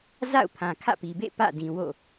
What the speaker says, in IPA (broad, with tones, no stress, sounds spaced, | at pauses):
z a̰˦˨ ʊ̯ pʰ ã˨ kʰ ä̰˦˨ p i˨ b ḛ˦˨ p ä̰˦˨ d ĩ˨ w o̰˦˨